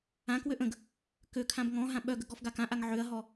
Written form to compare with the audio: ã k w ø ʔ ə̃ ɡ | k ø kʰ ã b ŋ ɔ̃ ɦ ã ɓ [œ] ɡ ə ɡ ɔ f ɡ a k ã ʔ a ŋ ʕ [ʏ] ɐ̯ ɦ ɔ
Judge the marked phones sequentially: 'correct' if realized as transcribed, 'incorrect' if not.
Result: correct, correct

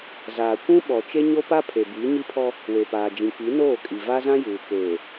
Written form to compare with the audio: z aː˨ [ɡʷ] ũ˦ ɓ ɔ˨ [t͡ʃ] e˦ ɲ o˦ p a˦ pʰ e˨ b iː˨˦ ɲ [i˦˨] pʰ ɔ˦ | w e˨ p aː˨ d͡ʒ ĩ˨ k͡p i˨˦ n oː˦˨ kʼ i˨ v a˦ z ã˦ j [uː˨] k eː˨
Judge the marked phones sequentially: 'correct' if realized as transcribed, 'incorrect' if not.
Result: incorrect, correct, incorrect, correct

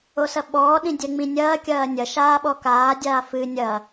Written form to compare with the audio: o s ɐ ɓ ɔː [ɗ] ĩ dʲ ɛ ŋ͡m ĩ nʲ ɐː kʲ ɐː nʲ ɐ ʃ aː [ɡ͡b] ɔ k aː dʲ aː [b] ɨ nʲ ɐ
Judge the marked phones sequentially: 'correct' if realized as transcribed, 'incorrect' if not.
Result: correct, incorrect, incorrect

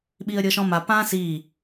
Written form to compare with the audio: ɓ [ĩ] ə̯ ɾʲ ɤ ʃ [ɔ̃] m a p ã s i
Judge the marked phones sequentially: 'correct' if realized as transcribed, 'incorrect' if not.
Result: incorrect, correct

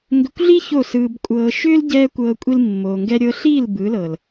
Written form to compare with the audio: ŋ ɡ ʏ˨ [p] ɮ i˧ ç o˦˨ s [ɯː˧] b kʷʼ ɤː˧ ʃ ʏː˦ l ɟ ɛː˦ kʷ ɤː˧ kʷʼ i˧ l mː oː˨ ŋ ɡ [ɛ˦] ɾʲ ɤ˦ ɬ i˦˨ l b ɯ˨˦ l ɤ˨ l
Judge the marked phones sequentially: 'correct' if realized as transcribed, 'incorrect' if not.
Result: incorrect, correct, correct

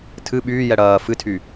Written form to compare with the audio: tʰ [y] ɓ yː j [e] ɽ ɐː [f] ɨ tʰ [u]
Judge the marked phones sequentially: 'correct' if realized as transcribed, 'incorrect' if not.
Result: incorrect, incorrect, correct, incorrect

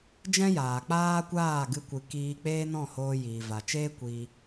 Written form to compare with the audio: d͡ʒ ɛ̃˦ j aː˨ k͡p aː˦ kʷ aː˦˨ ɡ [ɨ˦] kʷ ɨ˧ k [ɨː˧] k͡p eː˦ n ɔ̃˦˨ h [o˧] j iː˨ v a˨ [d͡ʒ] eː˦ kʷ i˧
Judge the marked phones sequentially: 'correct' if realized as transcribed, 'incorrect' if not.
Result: correct, incorrect, incorrect, incorrect

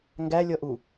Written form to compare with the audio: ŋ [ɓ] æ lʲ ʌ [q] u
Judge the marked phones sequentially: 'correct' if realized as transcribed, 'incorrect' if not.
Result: incorrect, incorrect

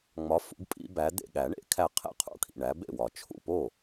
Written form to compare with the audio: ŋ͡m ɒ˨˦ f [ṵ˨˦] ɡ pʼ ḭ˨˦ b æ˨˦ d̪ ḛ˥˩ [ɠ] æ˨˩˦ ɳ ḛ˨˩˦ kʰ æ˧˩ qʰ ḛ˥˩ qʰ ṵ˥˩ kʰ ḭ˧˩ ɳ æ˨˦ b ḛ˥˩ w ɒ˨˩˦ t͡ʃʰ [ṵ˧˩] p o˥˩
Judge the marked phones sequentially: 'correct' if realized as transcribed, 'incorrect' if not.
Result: correct, correct, incorrect

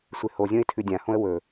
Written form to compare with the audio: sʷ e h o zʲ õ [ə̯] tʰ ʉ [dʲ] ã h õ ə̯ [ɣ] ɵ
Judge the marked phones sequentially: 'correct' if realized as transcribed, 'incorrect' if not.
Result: incorrect, correct, incorrect

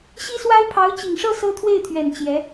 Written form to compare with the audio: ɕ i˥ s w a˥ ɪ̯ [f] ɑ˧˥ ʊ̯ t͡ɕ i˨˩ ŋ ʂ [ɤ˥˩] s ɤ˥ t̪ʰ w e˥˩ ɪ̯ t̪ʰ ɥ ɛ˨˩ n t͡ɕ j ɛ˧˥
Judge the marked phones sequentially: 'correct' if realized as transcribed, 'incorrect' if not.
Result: incorrect, correct

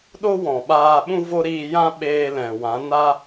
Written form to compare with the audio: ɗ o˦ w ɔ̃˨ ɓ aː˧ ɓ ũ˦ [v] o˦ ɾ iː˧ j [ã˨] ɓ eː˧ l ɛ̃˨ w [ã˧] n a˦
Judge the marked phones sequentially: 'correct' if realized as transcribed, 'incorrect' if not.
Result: correct, incorrect, incorrect

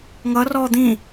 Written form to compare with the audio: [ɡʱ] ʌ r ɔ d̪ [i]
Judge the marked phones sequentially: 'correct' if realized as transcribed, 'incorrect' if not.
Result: incorrect, incorrect

